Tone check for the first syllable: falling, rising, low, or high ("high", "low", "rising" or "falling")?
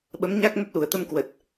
rising